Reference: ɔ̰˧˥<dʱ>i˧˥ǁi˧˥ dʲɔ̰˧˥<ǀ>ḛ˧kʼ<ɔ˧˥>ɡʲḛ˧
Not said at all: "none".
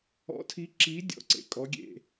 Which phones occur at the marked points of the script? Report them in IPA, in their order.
tʰ, ǀ, ɔ˧˥

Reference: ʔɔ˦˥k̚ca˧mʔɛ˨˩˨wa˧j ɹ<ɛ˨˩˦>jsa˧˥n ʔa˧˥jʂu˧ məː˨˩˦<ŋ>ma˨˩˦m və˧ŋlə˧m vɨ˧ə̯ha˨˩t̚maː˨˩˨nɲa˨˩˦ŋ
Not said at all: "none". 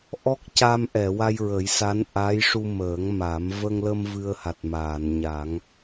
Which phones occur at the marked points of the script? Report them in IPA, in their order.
ə˨˩˦, ŋ

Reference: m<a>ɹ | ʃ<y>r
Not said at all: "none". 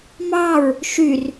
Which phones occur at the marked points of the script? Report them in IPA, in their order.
ɑ, y

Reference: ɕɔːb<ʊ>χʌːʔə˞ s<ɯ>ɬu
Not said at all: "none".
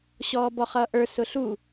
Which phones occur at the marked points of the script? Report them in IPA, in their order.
ɔ, ʊ

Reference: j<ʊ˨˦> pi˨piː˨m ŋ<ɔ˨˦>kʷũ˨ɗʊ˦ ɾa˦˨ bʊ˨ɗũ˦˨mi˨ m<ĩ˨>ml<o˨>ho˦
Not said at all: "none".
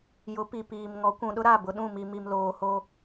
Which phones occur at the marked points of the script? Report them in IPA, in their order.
ʊ˨˦, ɔ˨˦, i˨, oː˨

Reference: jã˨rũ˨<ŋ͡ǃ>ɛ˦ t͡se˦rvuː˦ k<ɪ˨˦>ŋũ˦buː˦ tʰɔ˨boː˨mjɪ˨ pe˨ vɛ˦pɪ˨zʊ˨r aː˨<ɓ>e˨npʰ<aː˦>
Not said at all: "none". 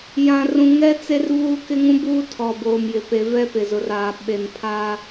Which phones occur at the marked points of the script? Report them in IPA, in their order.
ŋ, ɪ˦, ɓ, aː˦

